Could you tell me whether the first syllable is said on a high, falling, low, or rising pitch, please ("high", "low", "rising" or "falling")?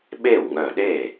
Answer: falling